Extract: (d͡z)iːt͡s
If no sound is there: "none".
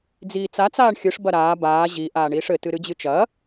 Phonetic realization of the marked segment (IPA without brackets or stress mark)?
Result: d͡z